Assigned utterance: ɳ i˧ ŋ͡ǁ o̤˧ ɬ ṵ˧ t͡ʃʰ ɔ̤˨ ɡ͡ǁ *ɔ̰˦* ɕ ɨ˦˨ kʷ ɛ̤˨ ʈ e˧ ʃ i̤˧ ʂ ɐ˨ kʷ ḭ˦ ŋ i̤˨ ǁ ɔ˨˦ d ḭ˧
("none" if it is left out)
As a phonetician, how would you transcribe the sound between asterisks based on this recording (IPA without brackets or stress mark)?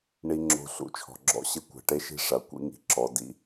ɔ̰˦